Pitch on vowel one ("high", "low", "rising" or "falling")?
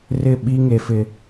falling